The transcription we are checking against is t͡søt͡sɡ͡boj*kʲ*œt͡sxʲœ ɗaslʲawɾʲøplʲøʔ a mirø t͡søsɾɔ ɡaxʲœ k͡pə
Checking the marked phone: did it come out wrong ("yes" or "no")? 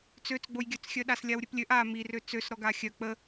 yes